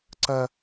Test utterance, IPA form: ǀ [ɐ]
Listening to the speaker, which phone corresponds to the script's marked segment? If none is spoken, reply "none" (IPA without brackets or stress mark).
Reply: ɐ